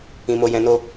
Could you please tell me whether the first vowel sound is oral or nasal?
nasal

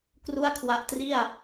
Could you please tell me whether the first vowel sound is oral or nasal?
oral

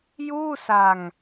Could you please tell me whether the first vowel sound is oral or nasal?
oral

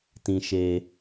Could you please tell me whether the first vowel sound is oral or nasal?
nasal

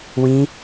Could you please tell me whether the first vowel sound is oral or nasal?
nasal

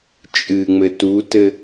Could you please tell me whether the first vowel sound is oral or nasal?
oral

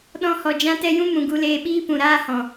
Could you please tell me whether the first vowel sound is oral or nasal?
nasal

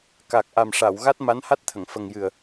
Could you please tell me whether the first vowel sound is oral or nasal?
oral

